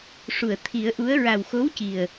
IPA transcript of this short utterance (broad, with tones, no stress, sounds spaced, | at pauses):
ʂ u˨˩˨ ə̯ t̪ʰ i˨˩˦ ə̯ ʔ u˧˥ ə̯ ɹ a˨˩ w x o˧˥ w c i˨˩ ə̯